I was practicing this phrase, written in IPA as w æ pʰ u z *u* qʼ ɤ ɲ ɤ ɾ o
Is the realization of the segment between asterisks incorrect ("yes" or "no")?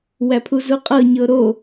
no